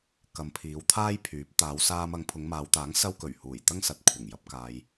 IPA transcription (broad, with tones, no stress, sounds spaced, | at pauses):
k ɐ˨ m pʰ iː˨˧ w t̪ʰ aː˥ j pʰ yː˨˥ p̚ t̪ aː˨˧ w s aː˧ m ɐ˨˧ ŋ pʰ ʊ˨˧ ŋ m aː˨˧ w t̪ aː˨˥ ŋ s ɐ˧ w k ɵ˨˩ ɥ h uː˨˩ j t̪ ɐ˥ ŋ s ɐ˨ t̚ kʷʰ ɐ˨˩ ŋ j ɐ˨˥ p̚ k aː˧ j